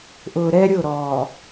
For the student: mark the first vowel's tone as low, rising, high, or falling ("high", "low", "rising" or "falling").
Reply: low